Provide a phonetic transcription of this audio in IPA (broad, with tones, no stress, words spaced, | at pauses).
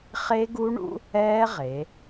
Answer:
χe˦˥ɡu˦˥ɳṵ˦˥ | ɛː˦˥ʁe˩˧